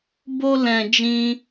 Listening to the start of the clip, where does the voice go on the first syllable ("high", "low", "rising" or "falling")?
high